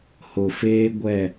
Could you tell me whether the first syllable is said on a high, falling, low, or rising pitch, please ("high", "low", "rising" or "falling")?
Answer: low